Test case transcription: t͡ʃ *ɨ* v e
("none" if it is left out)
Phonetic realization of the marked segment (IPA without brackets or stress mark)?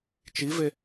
i